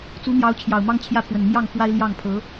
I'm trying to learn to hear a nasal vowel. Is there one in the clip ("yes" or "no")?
no